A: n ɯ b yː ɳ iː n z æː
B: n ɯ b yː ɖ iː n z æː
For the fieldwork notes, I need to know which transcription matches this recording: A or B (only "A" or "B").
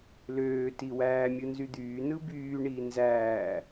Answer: A